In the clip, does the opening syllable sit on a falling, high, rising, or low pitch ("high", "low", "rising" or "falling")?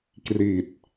low